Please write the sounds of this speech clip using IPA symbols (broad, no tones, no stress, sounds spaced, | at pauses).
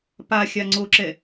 p a xʲ a ŋ͡ǀ o ǁ ɛ